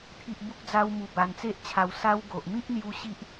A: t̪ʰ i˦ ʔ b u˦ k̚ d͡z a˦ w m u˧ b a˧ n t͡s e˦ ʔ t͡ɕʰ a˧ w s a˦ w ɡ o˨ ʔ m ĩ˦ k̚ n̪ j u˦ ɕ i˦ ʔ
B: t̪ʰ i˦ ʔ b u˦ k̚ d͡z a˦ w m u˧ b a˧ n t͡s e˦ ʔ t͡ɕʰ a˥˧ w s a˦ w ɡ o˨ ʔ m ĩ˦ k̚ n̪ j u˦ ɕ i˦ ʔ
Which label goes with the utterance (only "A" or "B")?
A